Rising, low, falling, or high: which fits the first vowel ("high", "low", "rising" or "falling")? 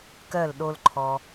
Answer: falling